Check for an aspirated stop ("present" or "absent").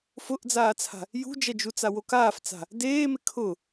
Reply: present